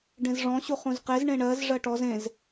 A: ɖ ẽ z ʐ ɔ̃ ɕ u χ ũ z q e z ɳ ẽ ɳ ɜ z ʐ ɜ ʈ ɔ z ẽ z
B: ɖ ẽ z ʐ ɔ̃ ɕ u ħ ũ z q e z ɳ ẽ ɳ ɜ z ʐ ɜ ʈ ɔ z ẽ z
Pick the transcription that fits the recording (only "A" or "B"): A